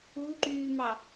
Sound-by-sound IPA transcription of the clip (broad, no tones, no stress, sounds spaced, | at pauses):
u ǃ yː m ɑ